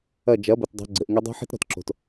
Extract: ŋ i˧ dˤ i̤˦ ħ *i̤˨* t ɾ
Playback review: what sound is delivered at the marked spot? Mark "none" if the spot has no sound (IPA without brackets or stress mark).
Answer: i̤˦